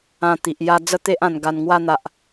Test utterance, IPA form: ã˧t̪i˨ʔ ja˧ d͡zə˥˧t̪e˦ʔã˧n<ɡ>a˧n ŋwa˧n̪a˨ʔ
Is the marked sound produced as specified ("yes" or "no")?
yes